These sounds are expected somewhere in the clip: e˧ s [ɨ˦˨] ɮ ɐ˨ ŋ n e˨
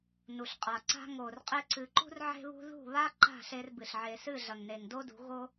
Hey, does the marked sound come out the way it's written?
yes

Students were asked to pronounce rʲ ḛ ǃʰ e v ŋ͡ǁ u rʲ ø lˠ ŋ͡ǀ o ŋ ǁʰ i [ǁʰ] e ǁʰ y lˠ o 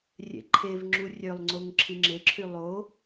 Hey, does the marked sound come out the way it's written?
no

